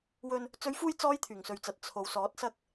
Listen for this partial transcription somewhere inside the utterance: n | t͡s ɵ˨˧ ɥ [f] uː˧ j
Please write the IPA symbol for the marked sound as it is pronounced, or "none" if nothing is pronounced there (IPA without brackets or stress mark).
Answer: f